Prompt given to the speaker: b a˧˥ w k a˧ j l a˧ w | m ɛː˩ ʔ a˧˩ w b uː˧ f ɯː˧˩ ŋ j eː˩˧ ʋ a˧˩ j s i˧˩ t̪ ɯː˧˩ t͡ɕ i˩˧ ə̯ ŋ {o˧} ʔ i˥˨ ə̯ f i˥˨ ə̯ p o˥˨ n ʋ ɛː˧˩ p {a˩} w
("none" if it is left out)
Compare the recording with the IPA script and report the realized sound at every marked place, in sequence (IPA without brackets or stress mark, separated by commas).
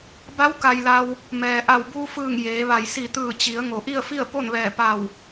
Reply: o˩, a˧˩